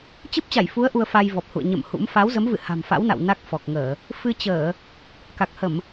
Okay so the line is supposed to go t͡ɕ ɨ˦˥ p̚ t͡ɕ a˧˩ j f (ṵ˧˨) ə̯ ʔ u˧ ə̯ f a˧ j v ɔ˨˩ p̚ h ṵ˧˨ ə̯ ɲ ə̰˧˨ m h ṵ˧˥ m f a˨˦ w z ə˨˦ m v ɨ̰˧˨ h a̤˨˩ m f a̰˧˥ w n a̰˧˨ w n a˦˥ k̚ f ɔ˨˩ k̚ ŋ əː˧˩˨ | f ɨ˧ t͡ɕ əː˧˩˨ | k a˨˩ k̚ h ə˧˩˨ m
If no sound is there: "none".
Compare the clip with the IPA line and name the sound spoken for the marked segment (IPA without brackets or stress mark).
u˨˦